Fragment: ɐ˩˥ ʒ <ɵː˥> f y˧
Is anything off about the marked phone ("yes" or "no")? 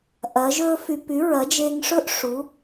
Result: no